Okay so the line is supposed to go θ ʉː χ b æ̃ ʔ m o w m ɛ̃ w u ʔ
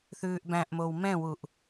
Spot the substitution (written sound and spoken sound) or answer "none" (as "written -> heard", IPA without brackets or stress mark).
χ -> ʔ